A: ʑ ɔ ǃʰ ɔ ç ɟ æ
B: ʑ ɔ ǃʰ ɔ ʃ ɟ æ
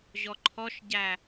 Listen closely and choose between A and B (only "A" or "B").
B